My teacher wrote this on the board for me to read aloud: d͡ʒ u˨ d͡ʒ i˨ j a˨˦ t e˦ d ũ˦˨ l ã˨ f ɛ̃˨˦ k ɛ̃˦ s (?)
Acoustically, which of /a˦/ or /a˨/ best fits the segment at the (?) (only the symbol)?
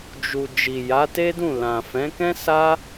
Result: a˦